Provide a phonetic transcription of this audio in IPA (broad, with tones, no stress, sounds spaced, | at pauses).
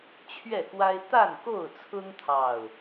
t͡ɕʰ ɥ ɛ˥˨ k w a˦ ɪ̯ t̪ a˥˨ n k o˥˨ ʊ̯ t͡sʰ ʊ˦ ŋ t̪ʰ ɑ˥˨ ʊ̯